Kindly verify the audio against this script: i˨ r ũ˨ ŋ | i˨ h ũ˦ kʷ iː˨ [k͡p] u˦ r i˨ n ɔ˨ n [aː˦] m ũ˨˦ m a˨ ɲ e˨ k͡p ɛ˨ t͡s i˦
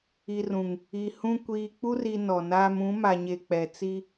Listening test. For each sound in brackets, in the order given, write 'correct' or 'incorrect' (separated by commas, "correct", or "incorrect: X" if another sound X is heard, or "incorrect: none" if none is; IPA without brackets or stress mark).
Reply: correct, correct